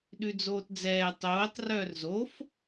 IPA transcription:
ɗʉd͡zoːtd͡zɛː tˤoːtˤ rœːrzof

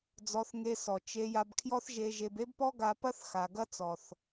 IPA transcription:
d͡zɔ˧θŋe˧ sɔ˨t͡ʃe˧ ja˧bkʰjɔ˦θʒe˧ ʒe˧be˦bpɔ˦ɡa˧ pɐ˦θxa˨ɡɐ˦ t͡sɔ˨θ

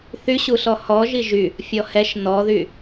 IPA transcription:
θyɕu ɬɔhɔʒi ʒy | fʲɔhɛʃ nɔðy

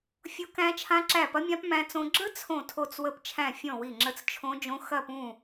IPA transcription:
fʲo˦˥kæ̃˦˥t͡ʃʰã˦˥ ǁæ˦˨pɐ˦˥mʲã˦˥p mæ̃˦˥t͡sõ˦˥ ɡ͡ǁə˦˥ t͡sʰõ˦˨tʰo˦˨t͡s wə˦˨pt͡ʃʰæ̃˦˨fʲɔ̃˦˨ wi˦˨ŋ͡ǁə˦˨t͡st͡ʃʰõ˦˥d͡ʒõ˦˥ xɐ˦˨pũ˦˨

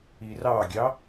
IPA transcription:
irɑɡʲɑ

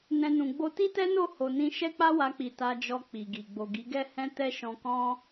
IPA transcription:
nɛ̃˧nũ˨ ɡ͡bo˧ti˦tɛ˦no˦˨ ho˨nĩ˧ ʃɛ˦k͡pa˦wa˧k͡pi˨ ta˧d͡ʒɔ˧ k͡pi˨ɡi˨ ɡ͡bo˨ɡi˨˦ɡɛ˦hɛ̃˦ tɛ˦ʃɔ̃˧kɔ̃˦

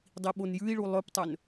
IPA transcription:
dˤiɓonjʉi̯ɭu lˠɵptˤɵn

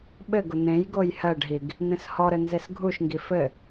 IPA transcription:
ɓɘɡʊ n̪ẽj ɡojhɜɖɦiɡ | n̪ẽshɔɾɘ nzesɡʱuʃŋɡi fɘ

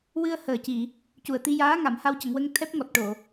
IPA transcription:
wɨ˧ə̯həː˨˩ci˨˩˨ | cu˨˩ə̯t̪i˧jaː˧˥ ŋa˨˩˨mha˧wcə˨˩˨ŋwə˧ŋ t̪ʰɛ˦˥p̚ ŋɔ˨˩t̚ʈo˨˩˨

